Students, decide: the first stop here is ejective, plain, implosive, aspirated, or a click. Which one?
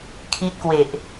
aspirated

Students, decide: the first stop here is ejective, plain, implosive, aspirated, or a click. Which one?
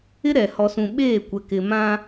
implosive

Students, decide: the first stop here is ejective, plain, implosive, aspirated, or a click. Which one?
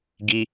plain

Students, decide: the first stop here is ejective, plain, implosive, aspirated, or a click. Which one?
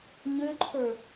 click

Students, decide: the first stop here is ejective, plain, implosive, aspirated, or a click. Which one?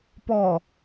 plain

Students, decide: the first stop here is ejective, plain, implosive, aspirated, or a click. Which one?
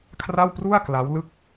aspirated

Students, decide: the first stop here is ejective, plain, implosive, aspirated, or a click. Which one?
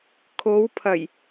aspirated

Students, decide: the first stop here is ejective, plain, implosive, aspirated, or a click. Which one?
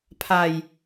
aspirated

